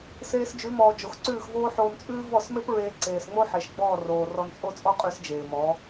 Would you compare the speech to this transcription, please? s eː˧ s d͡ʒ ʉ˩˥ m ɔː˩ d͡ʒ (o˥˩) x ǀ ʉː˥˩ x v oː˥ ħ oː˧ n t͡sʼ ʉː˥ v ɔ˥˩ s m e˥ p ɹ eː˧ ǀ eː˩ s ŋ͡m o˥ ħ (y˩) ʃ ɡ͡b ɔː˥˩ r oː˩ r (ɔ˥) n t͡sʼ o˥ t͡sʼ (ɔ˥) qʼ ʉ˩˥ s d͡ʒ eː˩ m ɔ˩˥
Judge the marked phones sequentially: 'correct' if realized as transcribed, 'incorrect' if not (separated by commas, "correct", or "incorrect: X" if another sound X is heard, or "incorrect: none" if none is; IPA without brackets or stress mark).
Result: incorrect: o˩, incorrect: e˩, incorrect: ɔ˧, correct